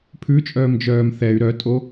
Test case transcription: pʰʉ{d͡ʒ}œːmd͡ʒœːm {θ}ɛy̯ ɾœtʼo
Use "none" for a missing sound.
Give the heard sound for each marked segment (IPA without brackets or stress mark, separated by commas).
t͡ʃʼ, θ